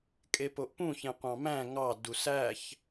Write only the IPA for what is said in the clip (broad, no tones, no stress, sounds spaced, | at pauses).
kʼ e p o ʔ p ũ ç ẽ qʷ ɑ̃ m æ̃ ŋ ɑ d u s æ ç